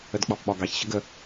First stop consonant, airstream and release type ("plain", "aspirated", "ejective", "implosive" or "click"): plain